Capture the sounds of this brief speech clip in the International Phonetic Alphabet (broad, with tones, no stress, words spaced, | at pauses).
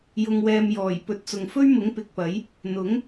jʊ˧ŋwɛː˧m jɔː˨˩j pɵ˨t̚t͡sʊ˨ŋfɵ˥ɥmʊ˨˥ŋ pɪ˨k̚pɐ˨˥j | n̪ʊ˨˥ŋ